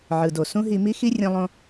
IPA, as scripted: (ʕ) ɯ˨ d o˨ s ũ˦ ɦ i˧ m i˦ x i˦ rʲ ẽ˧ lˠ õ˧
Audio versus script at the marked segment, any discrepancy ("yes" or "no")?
no